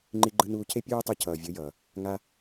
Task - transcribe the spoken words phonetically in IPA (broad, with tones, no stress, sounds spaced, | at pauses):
ŋ͡ǃ i˧ ɡ͡ǃ ɯ˧ n uː˧ cʰ e˦ pʲ uː˦ tˤ u˧ cʰ ʌː˨ vʲ ɯ˨˦ j ʌː˨ | ŋ a˦